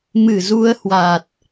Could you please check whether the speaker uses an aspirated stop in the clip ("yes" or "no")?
no